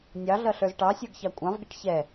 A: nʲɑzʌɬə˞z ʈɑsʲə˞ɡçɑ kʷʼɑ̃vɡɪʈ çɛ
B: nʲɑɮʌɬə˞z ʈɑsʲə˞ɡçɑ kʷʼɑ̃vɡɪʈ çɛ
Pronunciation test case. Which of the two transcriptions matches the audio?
B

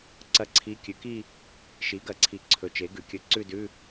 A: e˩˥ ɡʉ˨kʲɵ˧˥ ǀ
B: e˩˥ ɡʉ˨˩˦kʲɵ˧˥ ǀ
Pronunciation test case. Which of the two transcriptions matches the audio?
B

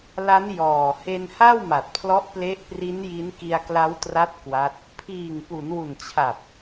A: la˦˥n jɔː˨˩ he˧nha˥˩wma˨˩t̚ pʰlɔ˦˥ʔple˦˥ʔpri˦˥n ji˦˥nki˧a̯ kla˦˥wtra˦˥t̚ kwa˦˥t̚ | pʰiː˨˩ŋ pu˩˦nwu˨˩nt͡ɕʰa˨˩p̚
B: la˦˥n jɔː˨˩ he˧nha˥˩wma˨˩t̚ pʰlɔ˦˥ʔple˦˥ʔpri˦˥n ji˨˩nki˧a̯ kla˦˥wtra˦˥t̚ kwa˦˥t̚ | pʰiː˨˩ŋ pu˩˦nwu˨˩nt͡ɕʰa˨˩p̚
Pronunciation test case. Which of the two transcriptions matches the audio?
A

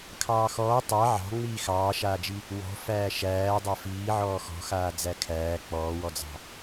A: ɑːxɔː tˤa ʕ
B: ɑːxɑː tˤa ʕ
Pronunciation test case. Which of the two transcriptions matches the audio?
A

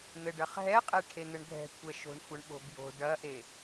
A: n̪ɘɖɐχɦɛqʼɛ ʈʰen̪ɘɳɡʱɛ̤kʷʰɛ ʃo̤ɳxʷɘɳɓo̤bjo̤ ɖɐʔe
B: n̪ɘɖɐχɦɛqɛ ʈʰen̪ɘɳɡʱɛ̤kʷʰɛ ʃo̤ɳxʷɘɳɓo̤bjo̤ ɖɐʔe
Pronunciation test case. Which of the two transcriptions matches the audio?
A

